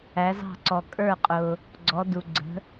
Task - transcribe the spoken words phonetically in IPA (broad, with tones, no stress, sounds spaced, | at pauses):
æ˨˥ z ɑ̤˥˩ ǀ ɔ˨ kʼ ə˞˥˩ qʼ ʊ˨ | ɡ͡ǀ ɔ˨˥ d u˨ ɡ͡ǀ ə̤˨˥